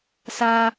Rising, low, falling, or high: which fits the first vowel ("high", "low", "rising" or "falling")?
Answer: high